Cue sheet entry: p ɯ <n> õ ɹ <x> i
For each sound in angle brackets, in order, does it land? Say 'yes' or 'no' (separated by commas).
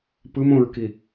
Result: no, no